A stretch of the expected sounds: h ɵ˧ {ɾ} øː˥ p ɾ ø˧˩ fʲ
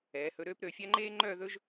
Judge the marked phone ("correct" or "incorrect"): correct